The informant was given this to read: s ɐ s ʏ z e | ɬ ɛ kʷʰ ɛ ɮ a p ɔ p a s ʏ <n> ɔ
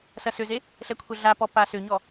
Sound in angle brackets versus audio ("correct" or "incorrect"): incorrect